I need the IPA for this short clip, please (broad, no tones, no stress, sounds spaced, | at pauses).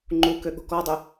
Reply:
ŋ͡ǃ u k ø ɠ o̤ k ɔ dˤ ə